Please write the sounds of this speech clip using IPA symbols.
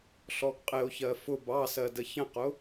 ɬɔɡqʼɪo̯çɜ fʊb ɑsɜ dəçə̃qʊ

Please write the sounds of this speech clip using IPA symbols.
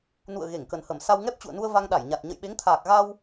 nṵ˧˨ə̯ ɣe˧˩ŋkə˨˩nhə˧˩m sa˧wŋɛ˦˥p̚t͡ɕṵ˧˨ə̯ nu˧ə̯ va˧ŋɗa˧˩j ɲa˨˩t̚ ɲə̰˧˨jɓe˨˦ŋt̪ʰaː˨˩k̚ ɣa˧w

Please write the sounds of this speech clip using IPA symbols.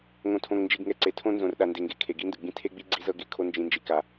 ŋõ˨tʰõ˨ŋnd͡ʒi˨ɡ ŋɛ˨ǀe˨ tʰõ˦nzõ˨r ɗa˨nde˨ŋɡe˨ kʰe˨ɡi˦ndɯ˨ɡ͡bĩ˦ tʰe˦ɡ͡bi˦ ɡ͡ǀi˦zɤ˦ɡe˨˦ kʰo˦ nd͡ʒĩ˦nd͡ʒi˦ka˦

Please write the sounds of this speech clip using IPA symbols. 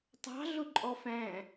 tˤɑ̤ ɮʊǃʼɔfæ̃

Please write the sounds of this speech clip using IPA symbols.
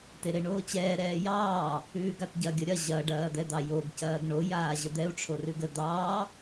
teɾeɳoːt͡ɕɛː ɾɛːjɑː | ʉːɡatɟɐ ɡʲəɾʲɐ ʑɐ ɖɐːd̪ɛd̪ɑjoɡ cɐːɡɳo jaːʑəd̪ɛu̯ ʈ͡ʂʰorʉɡə d̪ɑː

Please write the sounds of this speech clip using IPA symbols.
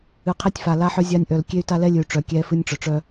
ɨ˨qʰe˦tʲfa˨ la˦ħœ˦zʲa˦nʲʔœ˨l kʲe˦y̯ta˦lɛ˦lʲɨ˨y̯ ʈ͡ʂœ˨kʲɛ˦ fɨ˦nʲʈ͡ʂœ˨ʈ͡ʂœ˦

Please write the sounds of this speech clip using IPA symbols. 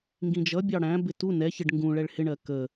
ŋɡĩd͡ʒʌbʲɑ ɽæ̃bɪ tu nɛçɪɖ ŋɡũ ɭɛɭhɪɳɜ kə

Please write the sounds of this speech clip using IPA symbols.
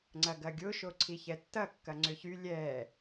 ŋ͡ǀɐɡɐɡʲʊ ʃoǀʰiçɛtːɐ kːɐŋ͡ǀʏçy lʲɛ

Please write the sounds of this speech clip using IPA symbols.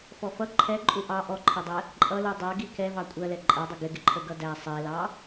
fɔfʌ ǃʰɛǃʼu ʔɑ ʔɔǃʰɛdˤɛ | ǃʼʌlu dˤɜɡi kɛ vɑkʷʼɜlɛ ǃʼɜdˤʊ ɡɪɡɪǃʰə ɡʌdæ sˤɛlɑ

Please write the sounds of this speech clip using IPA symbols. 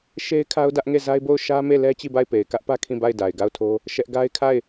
ʃe˦ɪ̯kʰa˦ʊ̯dä˦ʔŋe˦˨ za˦ɪ̯bo˦˨ʊ̯ ʃä˦me˦˨lɛ˦ t͡ɕi˦˨ba˦˨ɪ̯pe˨ɪ̯ kä˦ʔpä˦ kʰĩ˦˨ba˦˨ɪ̯da˨ɪ̯ ɡa˦˨ʊ̯tʰo˦ | ʃɛ˦ʔ ɡa˦ɪ̯kʰa˦˨ɪ̯

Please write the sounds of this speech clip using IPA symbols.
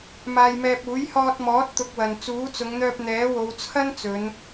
maː˧jmɛː˧p̚ uː˨˥jhɔː˧t̚mɔː˨˥t̚ t̪ʊ˧k̚wɐ˨n t͡suː˨˥t͡sʊ˨˧ŋn̪œː˧p̚ n̪ɛː˨˥wo˨˧wt͡sʰɐ˥n t͡sɵ˨˧n

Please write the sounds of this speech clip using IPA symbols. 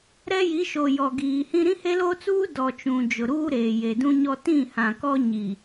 ɾɛ˦ji˨˦ʃo˨ jɔ˨ɡiː˨hĩ˦ ɾĩ˦he˦lo˦t͡suː˦ dɔ˨ t͡ʃũ˨ d͡ʒʊ˨ɾuː˦ ɾeː˨je˨dũ˦ɲɔ˦ tĩ˦˨hã˨kɔ˦ ɲi˨

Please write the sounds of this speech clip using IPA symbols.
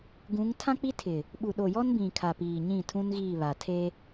ɡũ˨˦ŋ tʰã˦k͡pi˦tʰɪ˨ | ɓu˨ɗo˨jɔ˦nbĩ˨ kʰa˨piː˨ɲĩ˦˨ tʰũ˦nɣiː˦˨βa˨ tʰe˦

